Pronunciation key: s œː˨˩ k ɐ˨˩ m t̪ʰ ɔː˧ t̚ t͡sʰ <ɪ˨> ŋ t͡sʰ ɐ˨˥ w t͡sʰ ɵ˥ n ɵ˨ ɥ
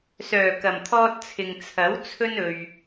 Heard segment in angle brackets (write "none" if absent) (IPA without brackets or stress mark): ɪ˨